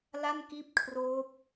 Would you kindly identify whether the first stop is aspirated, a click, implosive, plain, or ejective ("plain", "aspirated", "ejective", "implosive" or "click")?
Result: plain